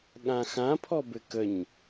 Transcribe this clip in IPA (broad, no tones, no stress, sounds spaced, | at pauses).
ɠ ã x ã pʰ ɔ b ɘ k ə ɲ